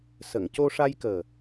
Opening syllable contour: low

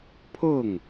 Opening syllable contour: falling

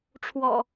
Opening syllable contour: low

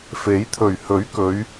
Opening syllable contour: rising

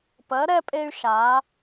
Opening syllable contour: rising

